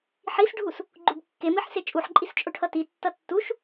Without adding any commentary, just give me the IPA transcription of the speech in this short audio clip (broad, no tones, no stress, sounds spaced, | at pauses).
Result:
ħ i s ɖʱ u s | ɡ͡ǃ u b kː e m i ħ s e t͡ʃʼ u ħ ǃʼ i s t͡ʃʼ o ʈʰ ʌ t i tː ʌ tː u ʃ